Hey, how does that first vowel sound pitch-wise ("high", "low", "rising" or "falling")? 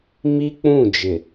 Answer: high